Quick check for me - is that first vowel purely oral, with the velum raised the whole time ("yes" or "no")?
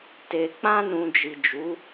yes